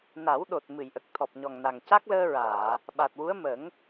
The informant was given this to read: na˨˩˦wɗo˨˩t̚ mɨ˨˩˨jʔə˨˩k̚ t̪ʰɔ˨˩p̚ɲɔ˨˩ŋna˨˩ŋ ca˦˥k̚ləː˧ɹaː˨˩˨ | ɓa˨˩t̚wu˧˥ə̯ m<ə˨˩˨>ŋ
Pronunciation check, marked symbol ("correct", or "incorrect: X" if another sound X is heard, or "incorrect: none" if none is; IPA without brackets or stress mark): incorrect: ə˨˩˦